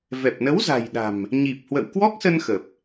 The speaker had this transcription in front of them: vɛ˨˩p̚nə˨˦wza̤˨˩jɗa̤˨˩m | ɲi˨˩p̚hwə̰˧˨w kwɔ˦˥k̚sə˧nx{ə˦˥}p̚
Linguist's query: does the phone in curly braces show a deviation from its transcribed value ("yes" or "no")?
yes